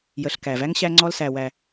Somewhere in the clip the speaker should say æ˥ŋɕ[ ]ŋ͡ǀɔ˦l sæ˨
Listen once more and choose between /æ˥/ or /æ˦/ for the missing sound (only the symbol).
æ˦